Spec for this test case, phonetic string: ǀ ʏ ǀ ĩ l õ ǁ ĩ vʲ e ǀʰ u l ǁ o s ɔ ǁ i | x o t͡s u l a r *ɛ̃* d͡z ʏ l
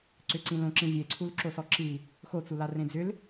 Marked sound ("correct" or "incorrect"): incorrect